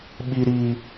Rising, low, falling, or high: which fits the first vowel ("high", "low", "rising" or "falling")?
low